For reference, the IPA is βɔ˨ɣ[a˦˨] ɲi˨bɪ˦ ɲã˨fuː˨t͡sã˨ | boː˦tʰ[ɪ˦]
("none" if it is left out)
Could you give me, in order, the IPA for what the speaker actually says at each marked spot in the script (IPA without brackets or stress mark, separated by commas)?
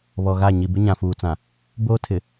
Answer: a˦˨, ɪ˨